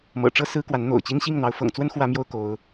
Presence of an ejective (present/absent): absent